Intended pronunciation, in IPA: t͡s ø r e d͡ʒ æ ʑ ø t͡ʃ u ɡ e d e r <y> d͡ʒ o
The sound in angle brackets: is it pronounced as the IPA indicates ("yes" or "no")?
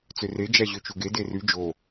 yes